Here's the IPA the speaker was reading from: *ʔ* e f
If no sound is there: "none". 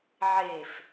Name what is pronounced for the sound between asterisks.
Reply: ʕ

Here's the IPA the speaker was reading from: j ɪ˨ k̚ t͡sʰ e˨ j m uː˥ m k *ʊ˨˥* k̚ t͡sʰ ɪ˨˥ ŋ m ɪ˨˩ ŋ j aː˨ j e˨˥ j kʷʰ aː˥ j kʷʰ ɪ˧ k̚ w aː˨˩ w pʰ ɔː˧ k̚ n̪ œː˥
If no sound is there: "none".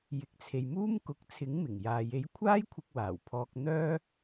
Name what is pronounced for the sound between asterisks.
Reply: ʊ˨˥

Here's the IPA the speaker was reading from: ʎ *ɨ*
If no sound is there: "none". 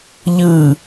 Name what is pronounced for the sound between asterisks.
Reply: ɨ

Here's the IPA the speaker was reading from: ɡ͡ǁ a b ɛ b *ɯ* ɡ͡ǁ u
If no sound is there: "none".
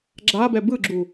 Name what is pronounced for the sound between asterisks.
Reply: ɯ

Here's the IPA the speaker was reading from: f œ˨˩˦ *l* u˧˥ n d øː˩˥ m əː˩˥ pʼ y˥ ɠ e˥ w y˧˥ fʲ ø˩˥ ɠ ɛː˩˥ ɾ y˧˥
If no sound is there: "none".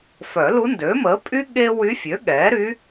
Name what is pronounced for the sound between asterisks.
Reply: l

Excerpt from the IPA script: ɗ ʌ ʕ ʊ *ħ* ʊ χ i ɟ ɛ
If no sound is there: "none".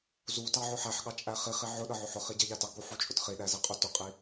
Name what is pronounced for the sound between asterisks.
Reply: ħ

